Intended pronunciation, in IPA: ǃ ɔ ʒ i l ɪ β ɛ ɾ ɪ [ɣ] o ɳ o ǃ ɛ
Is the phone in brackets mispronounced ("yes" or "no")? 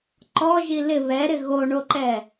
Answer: no